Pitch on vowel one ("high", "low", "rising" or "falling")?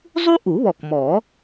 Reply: high